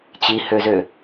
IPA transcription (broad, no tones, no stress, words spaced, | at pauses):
t͡ɕihøzø